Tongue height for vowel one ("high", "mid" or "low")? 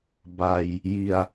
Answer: low